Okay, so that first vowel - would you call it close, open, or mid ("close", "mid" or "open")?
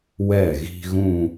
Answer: mid